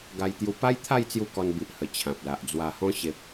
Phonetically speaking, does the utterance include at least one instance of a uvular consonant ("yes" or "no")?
no